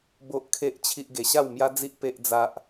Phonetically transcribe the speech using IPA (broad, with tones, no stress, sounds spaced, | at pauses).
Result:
b o˦ ʔ kʰ e˦ ʔ t͡ɕʰ i˦ ʔ ɡ e˧ ɕ a˥˧ w m j a˦ d͡z i˦ ʔ p e˦ ʔ d͡z a˦ ʔ